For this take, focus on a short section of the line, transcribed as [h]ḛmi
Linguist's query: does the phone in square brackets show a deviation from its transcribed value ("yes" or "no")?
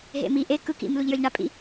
yes